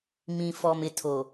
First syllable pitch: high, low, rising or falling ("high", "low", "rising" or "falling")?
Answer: low